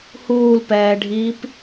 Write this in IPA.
huːlpɛːɖʱiːp

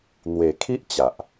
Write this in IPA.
n̪we˨˩kʰi˦ʔ t͡ɕa˨ʔ

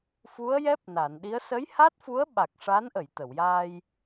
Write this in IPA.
fu˧˥ə̯jɛ˦˥p̚na˨˩˨nɗi˧˥ə̯ sə˧˥jha˦˥t̚fu˧˥ə̯ɓa˨˩k̚ ʂa˧˥nʔə˨˩˨jt̪ə˨˩˨wjaː˧j

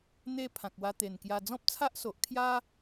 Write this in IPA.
n̪e˧ pʰã˨k̚wa˧t̪e˨˩nkja˧ d͡zɔ̃˦p̚t͡sʰa˦ʔso˨ʔ kʰja˦

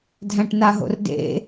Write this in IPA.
dʱæ̃ʈnaɦo̰rdḛ

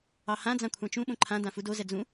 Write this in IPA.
ɑhãd͡zã kʷʰɑ̃t͡ʃũ ɓõǃʰã dãfudo zɛd͡zũ

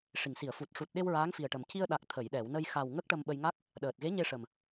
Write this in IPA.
ʂi˨˩˨ŋsi˨˩˨ə̯fu˨˩t̚ ʂu˨˩t̚ɗe˧w ɹaː˧˥ŋfi˨˩ə̯ʈə˨˩m ci˧ə̯ɗa˨˩k̚ t̪ʰə˨˩˨jɗɛ˨˩˨wnə˧j xa˨˩w ŋə˦˥k̚ ʈə˧mɓə˧jŋa˦˥k̚ | ɗəː˨˩t̚ɣe˧˥ ɲe˧ʂə˨˩m

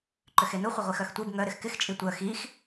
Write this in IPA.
ǃʏxenu χʷɪʁʷixœxtʷeb ŋœ ɾɪxkɪx t͡ʃʼitʷœ xix

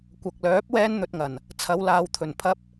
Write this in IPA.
kʷɐ˨k̚lœː˨˥p̚ wɛː˥nn̪ɵ˧t̚ŋɐ˨˩n | t͡sʰɐ˨˧wlaː˨˧wt̪ʰɵ˨˩npʰɐ˧p̚

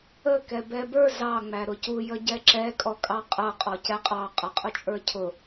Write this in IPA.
ə kɛbɛbə˞ zɑ ŋ͡mæɾʊcu jəɟɛǁɛ kʼɔkʼɑqʼʌ qʼɔcɛqʼɑ qʼʌqʼʊt͡ʃʼə˞cʰʊ

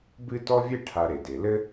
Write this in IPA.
bɨ˦ tɔ˦vʲe˦ ʈʰa˨ɾe˩de˩ lɘ˥

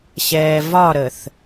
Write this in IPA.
ɕɛːvɒɾəθ

